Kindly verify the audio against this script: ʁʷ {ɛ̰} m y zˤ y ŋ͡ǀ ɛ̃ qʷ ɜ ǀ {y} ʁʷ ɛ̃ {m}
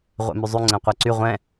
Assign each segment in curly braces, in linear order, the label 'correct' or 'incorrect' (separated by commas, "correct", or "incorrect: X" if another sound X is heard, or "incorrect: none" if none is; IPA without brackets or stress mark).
correct, correct, incorrect: none